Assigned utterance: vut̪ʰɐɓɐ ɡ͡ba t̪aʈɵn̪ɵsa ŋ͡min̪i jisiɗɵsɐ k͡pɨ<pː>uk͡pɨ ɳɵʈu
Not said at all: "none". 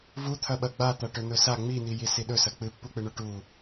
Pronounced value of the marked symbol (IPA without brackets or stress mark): pː